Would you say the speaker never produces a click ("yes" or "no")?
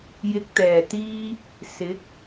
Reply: yes